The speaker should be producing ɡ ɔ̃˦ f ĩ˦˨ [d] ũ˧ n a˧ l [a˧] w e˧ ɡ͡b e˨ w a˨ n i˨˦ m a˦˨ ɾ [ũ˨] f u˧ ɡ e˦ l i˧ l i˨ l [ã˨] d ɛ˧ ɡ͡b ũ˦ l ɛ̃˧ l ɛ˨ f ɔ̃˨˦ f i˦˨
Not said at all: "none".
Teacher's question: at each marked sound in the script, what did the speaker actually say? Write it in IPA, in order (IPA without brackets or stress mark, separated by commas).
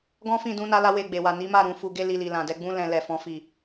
d, a˧, ũ˨, ã˨